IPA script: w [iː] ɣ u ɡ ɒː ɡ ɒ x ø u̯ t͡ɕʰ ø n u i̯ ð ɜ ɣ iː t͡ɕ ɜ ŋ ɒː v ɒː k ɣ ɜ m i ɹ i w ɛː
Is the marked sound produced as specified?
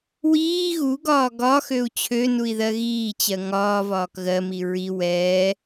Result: yes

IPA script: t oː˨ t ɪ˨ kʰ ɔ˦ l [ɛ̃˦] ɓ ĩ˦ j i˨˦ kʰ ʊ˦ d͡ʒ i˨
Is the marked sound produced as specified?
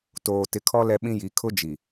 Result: no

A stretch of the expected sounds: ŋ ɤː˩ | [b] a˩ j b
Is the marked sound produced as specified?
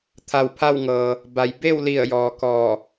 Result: yes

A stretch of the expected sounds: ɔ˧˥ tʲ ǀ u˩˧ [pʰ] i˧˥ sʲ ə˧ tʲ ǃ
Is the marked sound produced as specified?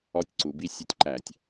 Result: no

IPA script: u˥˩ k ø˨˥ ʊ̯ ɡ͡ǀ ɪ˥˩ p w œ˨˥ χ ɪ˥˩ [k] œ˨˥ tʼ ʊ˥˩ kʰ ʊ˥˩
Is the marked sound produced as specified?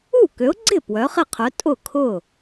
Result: no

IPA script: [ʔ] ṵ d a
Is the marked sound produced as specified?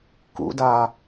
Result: no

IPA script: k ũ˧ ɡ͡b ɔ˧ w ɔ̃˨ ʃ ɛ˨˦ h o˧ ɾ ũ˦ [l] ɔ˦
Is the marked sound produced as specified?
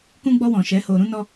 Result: no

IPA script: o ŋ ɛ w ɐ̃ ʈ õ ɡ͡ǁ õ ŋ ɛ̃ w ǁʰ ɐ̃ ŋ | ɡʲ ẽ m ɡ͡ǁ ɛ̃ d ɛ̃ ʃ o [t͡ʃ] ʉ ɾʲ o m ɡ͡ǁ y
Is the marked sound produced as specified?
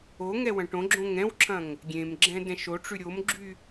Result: no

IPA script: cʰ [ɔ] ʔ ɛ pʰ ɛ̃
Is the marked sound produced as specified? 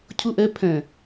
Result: no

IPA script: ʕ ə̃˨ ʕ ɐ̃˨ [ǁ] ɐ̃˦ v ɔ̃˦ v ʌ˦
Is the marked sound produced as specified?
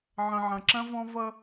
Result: yes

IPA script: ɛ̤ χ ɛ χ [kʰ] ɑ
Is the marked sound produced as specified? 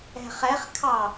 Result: yes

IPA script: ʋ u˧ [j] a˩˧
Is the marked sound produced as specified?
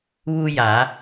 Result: yes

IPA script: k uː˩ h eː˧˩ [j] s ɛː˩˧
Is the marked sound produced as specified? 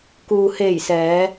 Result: yes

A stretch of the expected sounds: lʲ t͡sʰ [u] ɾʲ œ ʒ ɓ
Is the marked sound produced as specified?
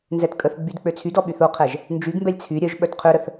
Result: no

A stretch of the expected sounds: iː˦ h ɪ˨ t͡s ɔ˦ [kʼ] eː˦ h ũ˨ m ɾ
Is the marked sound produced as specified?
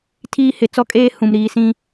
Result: yes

